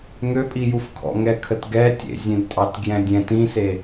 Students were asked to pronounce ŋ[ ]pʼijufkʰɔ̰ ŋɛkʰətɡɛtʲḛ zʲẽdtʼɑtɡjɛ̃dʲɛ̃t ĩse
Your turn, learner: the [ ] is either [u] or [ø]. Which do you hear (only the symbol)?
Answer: ø